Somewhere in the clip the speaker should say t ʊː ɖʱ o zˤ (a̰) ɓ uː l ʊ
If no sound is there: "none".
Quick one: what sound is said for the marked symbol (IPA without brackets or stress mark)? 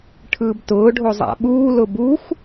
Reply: a̰